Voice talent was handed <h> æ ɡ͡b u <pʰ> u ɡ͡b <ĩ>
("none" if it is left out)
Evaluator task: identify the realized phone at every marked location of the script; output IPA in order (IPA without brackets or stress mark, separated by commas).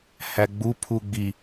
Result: h, pʰ, i